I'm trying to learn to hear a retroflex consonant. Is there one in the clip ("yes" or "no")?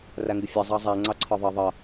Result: no